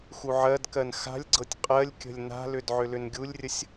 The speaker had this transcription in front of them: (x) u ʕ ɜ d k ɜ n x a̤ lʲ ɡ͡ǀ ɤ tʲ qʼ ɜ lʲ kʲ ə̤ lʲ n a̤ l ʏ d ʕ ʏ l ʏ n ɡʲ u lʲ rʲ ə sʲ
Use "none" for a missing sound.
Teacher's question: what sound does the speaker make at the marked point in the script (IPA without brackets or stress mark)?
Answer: x